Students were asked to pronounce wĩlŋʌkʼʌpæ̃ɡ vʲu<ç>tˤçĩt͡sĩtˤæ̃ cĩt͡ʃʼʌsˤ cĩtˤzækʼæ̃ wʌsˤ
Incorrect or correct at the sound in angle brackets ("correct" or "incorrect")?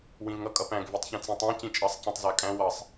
incorrect